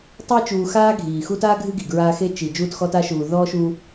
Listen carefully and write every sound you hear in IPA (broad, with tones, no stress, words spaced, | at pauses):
tˤi˦t͡ʃuː˨ xaː˥ɡʱiː˩ xu˦ta˥ɡʱɨ˦ ɡi˩ɡɹaː˦xe˥ t͡ʃi˩ d͡ʒuː˦txɔ˦ta˥ʃuː˨ ðɔː˥ʃuː˦